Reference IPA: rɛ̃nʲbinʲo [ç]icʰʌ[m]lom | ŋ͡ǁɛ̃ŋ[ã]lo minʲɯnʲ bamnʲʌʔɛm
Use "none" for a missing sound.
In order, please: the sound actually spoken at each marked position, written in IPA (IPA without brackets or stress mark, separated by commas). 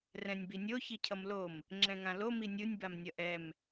ç, m, ã